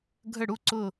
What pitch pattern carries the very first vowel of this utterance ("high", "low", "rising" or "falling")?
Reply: falling